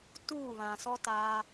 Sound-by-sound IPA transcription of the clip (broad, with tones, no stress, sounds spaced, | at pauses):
t uː˦˨ β ã˨ s ɔ˦ t aː˦